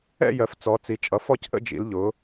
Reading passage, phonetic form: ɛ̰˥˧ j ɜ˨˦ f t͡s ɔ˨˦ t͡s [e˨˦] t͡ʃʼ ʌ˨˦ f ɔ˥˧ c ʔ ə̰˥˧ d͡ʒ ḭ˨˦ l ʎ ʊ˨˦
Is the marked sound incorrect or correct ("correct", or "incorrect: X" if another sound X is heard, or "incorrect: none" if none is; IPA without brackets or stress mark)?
incorrect: i˨˦